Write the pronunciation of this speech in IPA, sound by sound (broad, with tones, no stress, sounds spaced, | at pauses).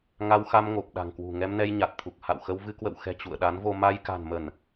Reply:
ŋ a˧ w x a˧ m ŋ o˨˩ p̚ ɗ a̤˨˩ ŋ k w ṳ˨˩ ŋ ɛ˧ m n ɛ˧ j ɲ a˨˩ t̚ t̪ʰ u˨˩ k̚ h a̰˧˨ w x ə˧ w v ɨ˧ k w ə̰˧˨ w x ɛ̤˨˩ t͡ɕ ṵ˧˨ ə̯ ɗ a˨˦ n v o˧ m a˧ j k a̤˨˩ n m ə˧˩˨ n